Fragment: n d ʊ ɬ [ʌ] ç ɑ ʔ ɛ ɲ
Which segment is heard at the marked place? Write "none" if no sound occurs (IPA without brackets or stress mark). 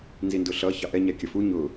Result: ʌ